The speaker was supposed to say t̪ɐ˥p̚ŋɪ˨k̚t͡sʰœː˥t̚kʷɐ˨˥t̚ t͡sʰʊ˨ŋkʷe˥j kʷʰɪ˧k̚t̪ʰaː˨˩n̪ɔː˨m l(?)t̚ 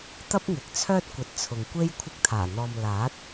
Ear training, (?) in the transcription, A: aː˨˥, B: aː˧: A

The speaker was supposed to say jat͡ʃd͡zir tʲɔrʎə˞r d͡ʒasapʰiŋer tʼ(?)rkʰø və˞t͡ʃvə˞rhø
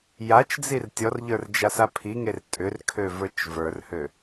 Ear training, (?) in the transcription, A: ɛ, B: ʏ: B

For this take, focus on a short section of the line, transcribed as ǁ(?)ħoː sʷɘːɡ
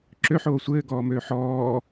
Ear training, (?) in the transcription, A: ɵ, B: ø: B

